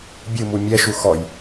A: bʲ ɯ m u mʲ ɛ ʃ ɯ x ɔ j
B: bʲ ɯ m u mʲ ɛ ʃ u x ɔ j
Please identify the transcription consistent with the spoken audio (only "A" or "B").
B